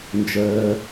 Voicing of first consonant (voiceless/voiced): voiced